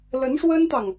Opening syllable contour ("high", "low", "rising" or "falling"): rising